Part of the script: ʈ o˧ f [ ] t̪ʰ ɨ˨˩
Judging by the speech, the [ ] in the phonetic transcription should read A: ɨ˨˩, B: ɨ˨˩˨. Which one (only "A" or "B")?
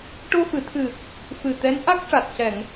B